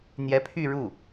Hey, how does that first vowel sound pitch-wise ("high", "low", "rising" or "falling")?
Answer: rising